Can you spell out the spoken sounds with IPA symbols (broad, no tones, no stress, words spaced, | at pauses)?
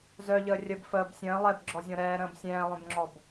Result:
zœʎəː rʲəb fəːb sʲə̃ː lˠɛbɡ͡ǁɔzʲɔ̃ ɾɛːɾə̃ːb sʲɛ̃ːlˠœ̃bŋ͡ǁɔb